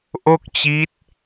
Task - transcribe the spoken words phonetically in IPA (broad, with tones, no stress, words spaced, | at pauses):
ʔo˥˩k̚t͡ɕi˦˥t̚